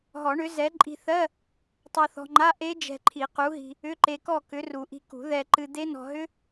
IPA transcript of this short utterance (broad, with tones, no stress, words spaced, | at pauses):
ɦɔ˨˩˦ɳʏ˨˥ zɛ˨˥ ǃʼi̤˧θɜ˧˥˧ | tˤɜ˧θɔ̤˧ŋ͡ǃa˧˥˧ ʔe˦˥ d͡ʒɛ̤˧ǃʰi˨˩˦qu˨˥ɦi̤˧ | ʏ˧˥˧ǃe˧kɔ˥˨ kʏ˨˥ru˨˩˦ʔi̤˧ kṳ˨˩˦ ðɛ˧ ǃɨ˧d̪e˦˥nɔ̤˧ ɦʏ˦˥